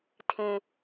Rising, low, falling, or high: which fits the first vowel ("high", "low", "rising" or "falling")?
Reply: low